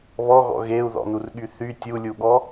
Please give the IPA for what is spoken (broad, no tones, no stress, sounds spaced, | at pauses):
β ɔ ɣ ɔ̰ ɣ e u̯ ð ɔ̰ n u r ɠ y θ y tʲ u lʲ u ɠ ɔ